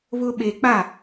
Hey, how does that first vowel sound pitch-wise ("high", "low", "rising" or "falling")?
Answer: high